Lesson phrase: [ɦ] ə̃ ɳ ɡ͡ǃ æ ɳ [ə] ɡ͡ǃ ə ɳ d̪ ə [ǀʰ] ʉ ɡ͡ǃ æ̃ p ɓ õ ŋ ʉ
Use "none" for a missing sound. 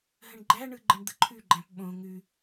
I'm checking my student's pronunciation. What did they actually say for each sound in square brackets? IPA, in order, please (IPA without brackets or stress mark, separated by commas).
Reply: ɦ, ɯ, ǃʰ